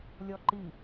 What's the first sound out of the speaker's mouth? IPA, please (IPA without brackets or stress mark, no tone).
lʲ